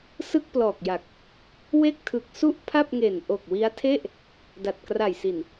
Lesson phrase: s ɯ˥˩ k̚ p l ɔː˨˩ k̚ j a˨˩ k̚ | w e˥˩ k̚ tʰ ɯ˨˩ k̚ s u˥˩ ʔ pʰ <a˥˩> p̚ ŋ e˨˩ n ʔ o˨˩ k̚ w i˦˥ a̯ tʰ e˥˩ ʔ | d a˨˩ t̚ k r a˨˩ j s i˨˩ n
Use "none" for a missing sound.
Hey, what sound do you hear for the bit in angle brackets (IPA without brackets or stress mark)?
a˥˩